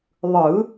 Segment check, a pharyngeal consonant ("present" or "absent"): absent